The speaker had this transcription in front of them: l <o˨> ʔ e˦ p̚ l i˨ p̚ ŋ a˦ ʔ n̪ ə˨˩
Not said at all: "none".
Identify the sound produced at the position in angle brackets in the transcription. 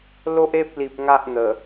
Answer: o˦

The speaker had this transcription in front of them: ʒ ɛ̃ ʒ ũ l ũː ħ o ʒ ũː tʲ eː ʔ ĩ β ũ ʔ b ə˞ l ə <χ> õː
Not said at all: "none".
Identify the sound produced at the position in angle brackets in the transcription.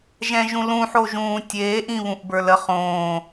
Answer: χ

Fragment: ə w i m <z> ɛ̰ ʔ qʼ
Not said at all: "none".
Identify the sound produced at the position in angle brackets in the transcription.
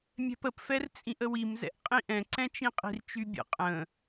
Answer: z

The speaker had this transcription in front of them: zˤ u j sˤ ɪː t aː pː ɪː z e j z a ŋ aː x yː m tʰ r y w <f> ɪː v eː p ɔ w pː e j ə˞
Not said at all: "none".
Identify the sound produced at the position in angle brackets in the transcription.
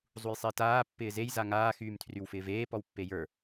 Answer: f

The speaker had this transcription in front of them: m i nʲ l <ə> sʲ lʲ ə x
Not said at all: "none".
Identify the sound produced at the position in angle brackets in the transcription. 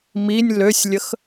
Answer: ø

